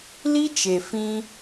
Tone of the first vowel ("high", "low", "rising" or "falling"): high